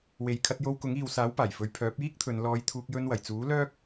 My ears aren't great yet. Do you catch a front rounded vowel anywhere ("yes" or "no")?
yes